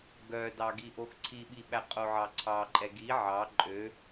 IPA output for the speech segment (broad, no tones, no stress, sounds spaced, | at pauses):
ɡ œ d ɑ ɡ i ʔ o x ǀʰ i ɓ i ɓ æ qʼ o ʕ ɑ ǀʰ ɑ ǃʼ ɛ ɡ i ʕ ɑ ǃʼ ø